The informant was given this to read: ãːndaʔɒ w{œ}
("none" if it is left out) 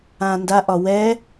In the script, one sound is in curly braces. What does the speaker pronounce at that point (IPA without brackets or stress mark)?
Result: ɛ